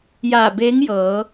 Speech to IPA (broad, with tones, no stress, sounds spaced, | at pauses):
j a˧˩ b e˧˥ ŋ j ɤː˩˧